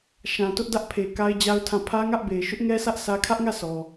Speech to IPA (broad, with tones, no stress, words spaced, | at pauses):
ʃã˨tʊ˦ʔdä˦ʔpʰe˨ ka˦ɪ̯d͡ʑa˦ʊ̯tʰã˦˨ pʰä˦ŋä˦ʔbe˨ɪ̯ ʃʊ˦ʔŋɛ˦sʰä˦ʔ sʰä˦ kʰä˦ʔŋä˦˨ sɔ˨